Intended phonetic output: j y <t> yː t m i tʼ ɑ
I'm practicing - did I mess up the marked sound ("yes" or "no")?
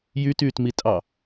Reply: no